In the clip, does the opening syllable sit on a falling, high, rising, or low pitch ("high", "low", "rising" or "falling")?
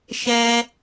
high